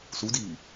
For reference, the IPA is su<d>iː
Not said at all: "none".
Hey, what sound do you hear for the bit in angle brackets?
d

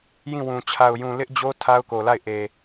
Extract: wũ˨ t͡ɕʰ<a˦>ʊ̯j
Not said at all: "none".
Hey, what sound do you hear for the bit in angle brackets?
a˨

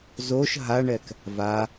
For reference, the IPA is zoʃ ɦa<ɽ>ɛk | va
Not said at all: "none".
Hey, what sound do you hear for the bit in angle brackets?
ɳ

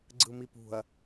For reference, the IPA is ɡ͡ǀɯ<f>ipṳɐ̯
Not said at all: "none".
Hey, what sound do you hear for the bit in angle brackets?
m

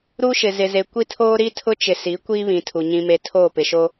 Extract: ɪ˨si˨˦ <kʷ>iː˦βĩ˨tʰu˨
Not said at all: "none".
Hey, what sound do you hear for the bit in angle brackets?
kʷ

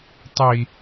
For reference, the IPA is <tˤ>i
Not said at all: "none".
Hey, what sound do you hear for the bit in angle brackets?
tˤ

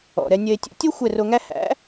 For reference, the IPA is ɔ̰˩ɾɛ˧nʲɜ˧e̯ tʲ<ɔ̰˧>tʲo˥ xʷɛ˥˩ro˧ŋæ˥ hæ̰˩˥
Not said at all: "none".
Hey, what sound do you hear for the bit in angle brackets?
o̰˧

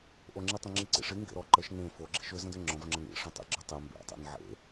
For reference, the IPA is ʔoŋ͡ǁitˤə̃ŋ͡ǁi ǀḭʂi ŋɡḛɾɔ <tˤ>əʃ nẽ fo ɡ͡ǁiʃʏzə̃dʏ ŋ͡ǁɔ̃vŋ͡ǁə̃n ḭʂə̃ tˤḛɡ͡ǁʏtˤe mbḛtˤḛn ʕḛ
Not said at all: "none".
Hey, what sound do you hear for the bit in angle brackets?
ǃ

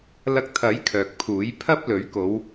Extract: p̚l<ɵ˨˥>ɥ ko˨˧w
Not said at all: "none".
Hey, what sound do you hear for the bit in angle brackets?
ɵ˨˥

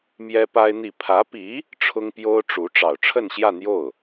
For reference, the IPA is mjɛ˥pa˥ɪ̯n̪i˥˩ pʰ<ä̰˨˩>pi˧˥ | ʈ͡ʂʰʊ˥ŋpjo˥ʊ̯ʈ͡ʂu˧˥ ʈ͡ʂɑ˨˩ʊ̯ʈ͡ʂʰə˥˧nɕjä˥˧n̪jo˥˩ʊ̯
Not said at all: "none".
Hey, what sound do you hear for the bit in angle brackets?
ä˧˥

